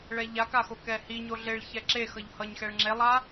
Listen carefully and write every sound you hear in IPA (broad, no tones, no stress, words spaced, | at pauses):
ɭɛʎakaxo kɛhi ɲoɮeɭ çɛǁex ʌʎhʌɲ xɛɭŋ͡ǁelˠa